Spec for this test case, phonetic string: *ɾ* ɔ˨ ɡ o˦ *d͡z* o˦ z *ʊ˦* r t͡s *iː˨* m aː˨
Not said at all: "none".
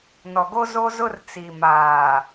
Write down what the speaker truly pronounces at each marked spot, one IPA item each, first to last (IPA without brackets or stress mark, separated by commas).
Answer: n, z, ʊ˦, i˨